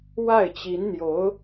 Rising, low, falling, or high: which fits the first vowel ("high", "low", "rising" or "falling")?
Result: falling